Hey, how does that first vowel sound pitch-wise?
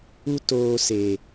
high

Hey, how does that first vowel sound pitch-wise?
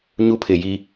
high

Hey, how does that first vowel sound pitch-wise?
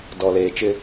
low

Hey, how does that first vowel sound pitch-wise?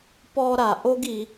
high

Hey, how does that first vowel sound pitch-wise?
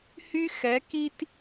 high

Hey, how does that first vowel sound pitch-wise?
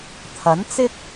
rising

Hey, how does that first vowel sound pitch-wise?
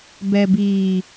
low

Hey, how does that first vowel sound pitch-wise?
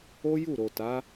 high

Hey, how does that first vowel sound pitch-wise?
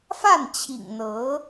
falling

